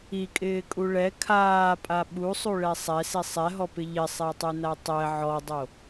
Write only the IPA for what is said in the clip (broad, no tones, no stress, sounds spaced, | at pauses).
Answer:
i kʼ ɪː kʼ u ɭ ɛ kʰ aː pʼ a ɓ u sˤ u ɭ ɛ sˤ ɛ s i sˤ ɛ ɦ ɔ p ɪ ʎ ɪ sˤ ɛ tˤ u n a tˤ ɛ ʕ ɔ dˤ o